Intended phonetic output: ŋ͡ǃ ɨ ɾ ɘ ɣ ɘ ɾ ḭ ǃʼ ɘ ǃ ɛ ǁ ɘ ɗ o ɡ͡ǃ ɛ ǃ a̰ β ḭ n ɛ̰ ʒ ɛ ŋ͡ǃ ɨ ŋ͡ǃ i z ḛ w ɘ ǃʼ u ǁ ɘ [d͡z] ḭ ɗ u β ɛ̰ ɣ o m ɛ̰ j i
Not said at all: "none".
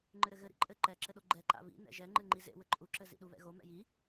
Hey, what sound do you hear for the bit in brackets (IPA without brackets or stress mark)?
z